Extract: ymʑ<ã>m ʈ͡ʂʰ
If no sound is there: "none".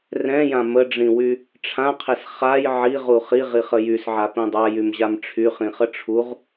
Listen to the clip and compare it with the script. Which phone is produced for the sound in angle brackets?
a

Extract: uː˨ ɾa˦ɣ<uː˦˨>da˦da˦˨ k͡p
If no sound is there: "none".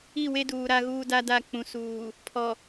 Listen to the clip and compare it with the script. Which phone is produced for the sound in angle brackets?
uː˦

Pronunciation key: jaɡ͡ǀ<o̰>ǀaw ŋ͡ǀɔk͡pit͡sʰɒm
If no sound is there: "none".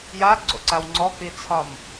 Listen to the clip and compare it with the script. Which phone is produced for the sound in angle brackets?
o̰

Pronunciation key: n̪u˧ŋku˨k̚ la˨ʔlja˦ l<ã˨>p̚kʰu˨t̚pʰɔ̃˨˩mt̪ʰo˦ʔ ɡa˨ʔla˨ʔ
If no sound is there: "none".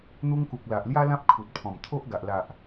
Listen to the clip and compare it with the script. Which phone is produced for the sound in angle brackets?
ã˦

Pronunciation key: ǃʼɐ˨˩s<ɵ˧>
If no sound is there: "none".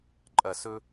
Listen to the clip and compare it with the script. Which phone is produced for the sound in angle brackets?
ɵ˧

